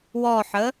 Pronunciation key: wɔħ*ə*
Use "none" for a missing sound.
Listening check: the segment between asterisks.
ə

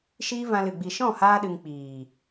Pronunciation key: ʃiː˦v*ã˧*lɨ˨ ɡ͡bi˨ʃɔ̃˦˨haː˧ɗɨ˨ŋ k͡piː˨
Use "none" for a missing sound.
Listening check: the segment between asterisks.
ã˧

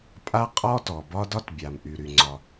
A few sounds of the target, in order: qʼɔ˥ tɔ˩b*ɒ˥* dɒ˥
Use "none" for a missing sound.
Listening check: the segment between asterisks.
ɒ˥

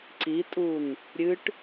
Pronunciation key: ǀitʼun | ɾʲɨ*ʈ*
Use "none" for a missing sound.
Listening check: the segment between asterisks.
ʈ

